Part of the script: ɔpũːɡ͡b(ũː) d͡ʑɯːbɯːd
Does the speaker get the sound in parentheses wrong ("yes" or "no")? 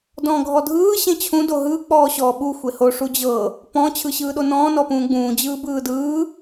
no